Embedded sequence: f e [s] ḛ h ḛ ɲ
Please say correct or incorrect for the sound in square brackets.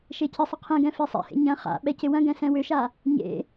incorrect: sˤ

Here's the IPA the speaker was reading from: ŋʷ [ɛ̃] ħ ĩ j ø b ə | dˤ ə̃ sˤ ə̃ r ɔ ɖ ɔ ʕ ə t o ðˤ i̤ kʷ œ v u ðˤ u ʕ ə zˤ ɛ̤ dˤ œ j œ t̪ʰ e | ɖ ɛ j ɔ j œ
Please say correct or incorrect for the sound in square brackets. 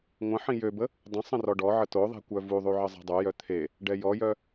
incorrect: ə̃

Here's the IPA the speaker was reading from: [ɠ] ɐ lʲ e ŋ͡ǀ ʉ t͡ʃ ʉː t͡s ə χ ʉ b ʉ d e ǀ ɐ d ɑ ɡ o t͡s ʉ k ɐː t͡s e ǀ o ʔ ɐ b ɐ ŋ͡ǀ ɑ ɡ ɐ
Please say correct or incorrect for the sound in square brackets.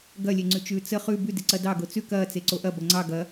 incorrect: ɡ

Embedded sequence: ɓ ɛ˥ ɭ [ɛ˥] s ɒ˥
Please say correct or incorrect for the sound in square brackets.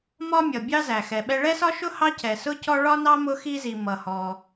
correct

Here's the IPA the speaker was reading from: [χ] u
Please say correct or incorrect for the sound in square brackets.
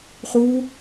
correct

